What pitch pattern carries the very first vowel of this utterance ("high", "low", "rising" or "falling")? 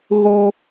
high